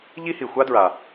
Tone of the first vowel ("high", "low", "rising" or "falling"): high